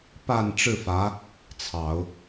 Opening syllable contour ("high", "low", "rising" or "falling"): low